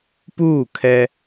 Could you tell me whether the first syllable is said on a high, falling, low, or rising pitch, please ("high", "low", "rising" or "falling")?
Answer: falling